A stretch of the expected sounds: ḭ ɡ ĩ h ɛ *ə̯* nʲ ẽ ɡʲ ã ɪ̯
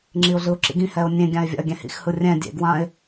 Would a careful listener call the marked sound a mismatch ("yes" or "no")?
yes